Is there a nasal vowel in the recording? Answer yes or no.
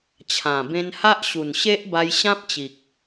yes